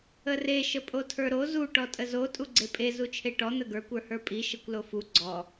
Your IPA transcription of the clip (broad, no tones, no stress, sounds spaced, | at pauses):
ə r e ʃ ə pʼ o tʰ ə˞ ɾ o z u ʈ ɔ tʼ ə z o tʼ u ɡ͡ǀ e pʼ e z u t͡ʃʰ e ʈ ɔ n̪ ə ɡ ə˞ kʷ ə˞ h ə˞ pʼ i ʃ ə kʷ l o f u ɡ͡ǀ ɔ